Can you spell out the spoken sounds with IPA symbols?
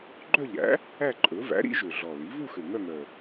ɡ͡ǃ œ˥˧ ʎ æ̰˩˥ | æ˥˧ ǃʼ ɵ˩˥ v æ̰˩˥ ɾ ḭ˩˥ ʒ ø˨˩ ɮ ɔ˨˩ l i˩˥ v u˥˧ x ø˨˩ ŋ œ˥˧ ŋ œ˨˩

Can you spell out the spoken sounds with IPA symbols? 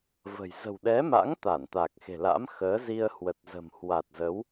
v ə̤˨˩ j z ə̤˨˩ w ɗ ɛ˨˦ m a̰˧˥ ŋ t̪ a˧˩ n t̪ a˨˩ k̚ x e̤˨˩ l a̰˧˥ m x əː˨˦ z i˧ ə̯ h w ə˨˩ t̚ z ə̤˨˩ m h w a˨˩ t̚ z ə˨˦ w

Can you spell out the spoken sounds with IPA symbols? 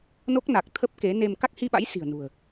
n o˦˥ k̚ n a˨˩ k̚ t̪ʰ ə˦˥ p̚ k e˨˦ n e˧ m k a˦˥ k̚ h i˧ ɓ a̰˧˥ j s i̤˨˩ ə̯ n ṳ˨˩ ə̯

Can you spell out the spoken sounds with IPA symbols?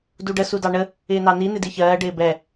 d u ɖ ə s u d ɑ ɳ ə | ɪː n ɑ n i n ɪ d i ç ɜː ɖ ɪː b ɛ

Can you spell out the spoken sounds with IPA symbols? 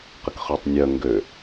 q ə k χ ø tˤ nʲ œ ŋ ɡ ø

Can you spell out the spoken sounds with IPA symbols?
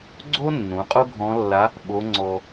ɡ͡ǀ o˥ nː ũ˩˧ qʼ o˥ ɡʱ ɔ̃˧˥ lː a˧˥ | ɓ o˧˥ ŋ͡ǀ ɔ˧

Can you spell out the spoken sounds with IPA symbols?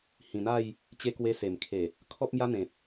h ĩ˨˩ n̪ a˥˧ j | t͡ɕ e˧ k w e˧ s e˨˩ m kʰ e˨˩ | kʰ ɔ˦ p̚ m j a˦ n̪ ẽ˨ p̚

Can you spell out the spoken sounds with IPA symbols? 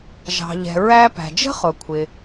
ʒ ɑ̤˩ ʎ ɛ̤˩ ɹ æ˧ p æ̤˩ d͡ʒ ə̤˥ χ ʊ˩ kʷʰ ɪ˩

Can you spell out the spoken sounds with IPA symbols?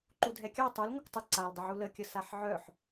ǃ u dʱ ɛ kʲ ɑ tˤ u l ŋʷ ə kʷ tˤ ə ǀ a l dˤ ə ʕ u l ə kʲ ə s a ħ ʕ œ ħ

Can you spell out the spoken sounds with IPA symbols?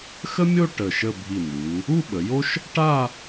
x ə˥ mʲ o˥˧ ʈ ə˧˩ ʃ ə˥˧ bʱ i˧˩ n̪ u˩˧ | u˥˧ ɓ ə˩˧ j o˥ ʃ | ʈ a˥˧

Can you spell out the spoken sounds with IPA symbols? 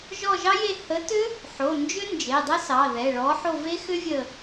ʒ ɔ˦˨ ʒ ɑ˦˥ j e˦˨ h ə˨˥ t ʏ˦˥ | ħ o˩˧˩ n d͡ʒ ʏ˦˥ n d͡ʒ e˩˧˩ dˤ ə˦˥ s ɑ˩˧˩ ð ɛ˩˧˩ ɭ ɔ˨˥ ħ o˦˨ v e˦˥ x ʏ˦˥ vʲ ə˦˨

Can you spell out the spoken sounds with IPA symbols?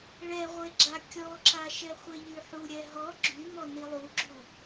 ɭ ɛ ʁʷ e ɡ͡ǁ a kʲ ɔ ǁ a ʃ ɛ χʷ e ʎ y ħ u ɾʲ ɛ ɦ ɔ ɡ͡ǁ y m ɔ n i lˠ u ɡ͡ǁ u

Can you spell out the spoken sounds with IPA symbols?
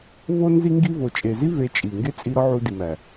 v o˧ n z i˧ ŋ ɡ i˧ v o˨ t͡ʃʼ e˨ z i˦ v e˧ t͡ʃʼ i˨ ŋ ɡ e˦ t͡sʼ i˧ ɾ ɒ˦ ʕ u˧ d i˨ m æ˨

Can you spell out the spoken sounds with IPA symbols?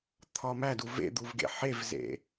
t̪ʰ ɒ m æ d u v ḛ d̪ u v ɡ ḛ ħ e v z ḛ

